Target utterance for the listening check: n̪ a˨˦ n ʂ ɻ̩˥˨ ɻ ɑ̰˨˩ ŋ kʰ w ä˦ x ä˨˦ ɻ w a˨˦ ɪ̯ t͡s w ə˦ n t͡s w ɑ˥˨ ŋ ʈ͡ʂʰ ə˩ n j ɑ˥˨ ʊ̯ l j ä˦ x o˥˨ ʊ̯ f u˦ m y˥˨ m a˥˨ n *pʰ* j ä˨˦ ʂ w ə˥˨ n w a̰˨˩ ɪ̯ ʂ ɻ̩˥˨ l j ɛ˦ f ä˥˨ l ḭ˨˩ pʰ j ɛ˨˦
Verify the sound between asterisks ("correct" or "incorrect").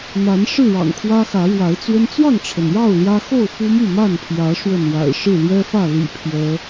correct